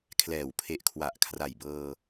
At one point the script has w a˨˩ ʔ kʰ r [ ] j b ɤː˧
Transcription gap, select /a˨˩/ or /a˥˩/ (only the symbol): a˨˩